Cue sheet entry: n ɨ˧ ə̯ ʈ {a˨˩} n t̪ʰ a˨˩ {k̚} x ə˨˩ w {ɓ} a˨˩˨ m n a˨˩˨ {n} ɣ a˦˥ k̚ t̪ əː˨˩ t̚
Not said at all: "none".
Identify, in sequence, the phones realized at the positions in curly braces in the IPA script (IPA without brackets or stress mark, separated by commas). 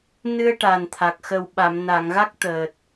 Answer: a˨˩, k̚, ɓ, ŋ